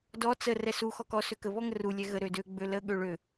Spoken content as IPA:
d ɔ t͡s ə r ɛ s u x ɔ k ɔ s ø k ə β ɔ ŋ ə r u lʲ ɛ ɣ ə ɾ ø d ø ɡ͡b ø l ə ɠ ø ɭ ø

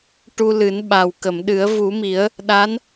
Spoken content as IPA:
ʈ u˧ l ɨ˨˩˦ n ɓ a˨˩ w k ə˨˩˨ m ɗ ɨ˨˩˦ ə̯ v u˨˩˦ m i˨˩˦ ə̯ | ɗ a˧˥ n

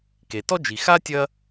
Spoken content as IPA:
k e˩ t ɔ˥ d͡ʒ i˨ x a˥ tʲ ɐ˦

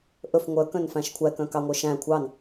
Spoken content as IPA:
ʔ ɵ f ŋʷ œ k œ̃ n f æ̃ ʃ kʷʰ æ k œ̃ k ɑ ŋʷ œ ʃ æ̃ kʷʰ ɑ n

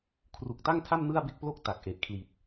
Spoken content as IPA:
kʰ r u˨˩ k̚ t a˥˩ ŋ tʰ a˥˩ m n ɯ˥˩ a̯ b e˥˩ k̚ p l o˥˩ k̚ t a˨˩ k̚ ʔ e˨˩ ʔ kʰ l i˨˩ t̚

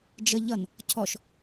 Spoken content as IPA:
d͡ʒ ə ʎ ʌ n | cʰ ɔ ʃ

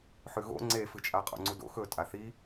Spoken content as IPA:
ħ ʉ ɣ o̰ ŋ͡ǀ e f ɨ t͡ʃʼ a qʼ o̰ ŋ͡ǀ u d o̰ x ɵ tʼ a θ i

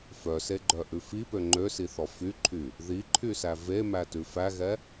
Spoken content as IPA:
f œ s e ɡ͡ǃ œ ʔ ʉ f i p ø ŋ͡ǃ ø s i θ ɔ f y ǃʰ y | ð i ǃʰ y s æ v e m æ t ʉ f æ ɣ ɛ

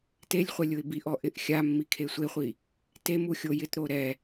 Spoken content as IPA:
t e lʲ χʷ ɛ lʲ ʊ ɪ̯ b i ʔ ɔ ʔ ɪ ʔ xʲ a mː i kʰ e sʷ e χʷ i | t e m u xʲ o j ɪ t ɾ o ɾ ɛ

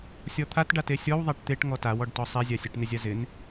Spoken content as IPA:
sʲ ɔ t̪ʰ a t ɖ a t e sʲ ɔ w ðˤ a ʈ t̪ e ʈ ŋ ɔ t a w ɔ ɖ t ɔ sˤ e zʲ a sʲ a ʈ n ɪ zʲ a z ɪ n

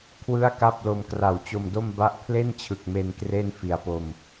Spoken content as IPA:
kʰ w ɯ˥˩ a̯ k a˥˩ p̚ l o˧ m k r a˨˩ w t͡ɕ o˧ m d o˥˩ m b a˦˥ ʔ pʰ l e˥˩ n t͡ɕʰ ɯ˨˩ k̚ m e˧ n k r e˥˩ n f i˩˦ a̯ p o˨˩ m

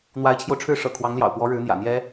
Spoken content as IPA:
n̪ w a˧˥ ɪ̯ t͡ɕʰ j o˧ ʊ̯ ʈ͡ʂʰ ɻ̩˥˩ ʂ ɤ̰˨˩ kʰ w ɑ˧˥ ŋ l j ɑ̰˨˩ ʊ̯ p w ɔ˧˥ ɻ ɻ̩˧˥ n̪ j ä̰˨˩ n̪ j ɛ˥

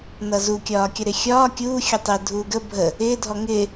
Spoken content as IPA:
n ʌ z u kʲ ɒː kʲ ʌ ɾ ɪ xʲ ɒː kʲ uː xʲ ʌ tˤ ɪː dʱ uː ɡ ə bʱ ə | ɪː dʱ ɔ ŋ ɪː

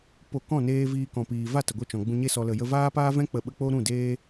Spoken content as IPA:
p o˨ k ɔ̃˦˨ n eː˧ v iː˧ k ɔ̃˨ p iː˨ v a˦˨ t ə˨ ɡʷ ə˦˨ t͡ʃ ɔ̃˨ ɡ͡b ũ˧ ɲ e˧ s ɔ˨ l ə˨ j ə˧ v aː˦ p aː˦ v ɛ̃˦ k͡p ə˧ ɓ ə˦ k͡p o˦ ɾ ũ˦˨ d eː˦

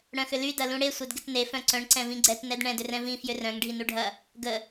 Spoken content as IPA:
ɽ œ̃ x ʏ l y d ɐ l ũ ɽ e sʷ œ d ɡ ɪ t n e f œ̃ ǀ œ̃ ɳ ǀ ɛ̃ v ĩ ɡ͡ǀ ɛ t n ɛ d ɳ ɛ̃ d ʏ r ɛ̃ v ĩ f j ʏ r œ̃ ŋ ɖʱ i n u ɖʱ ɐ | ɡ ə

